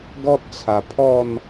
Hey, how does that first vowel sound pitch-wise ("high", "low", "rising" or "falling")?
high